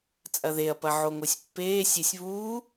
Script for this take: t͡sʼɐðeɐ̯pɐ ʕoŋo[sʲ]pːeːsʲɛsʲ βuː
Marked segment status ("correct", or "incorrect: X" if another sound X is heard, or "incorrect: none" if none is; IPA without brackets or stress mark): correct